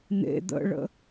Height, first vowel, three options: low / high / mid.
mid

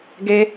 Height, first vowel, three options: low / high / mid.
mid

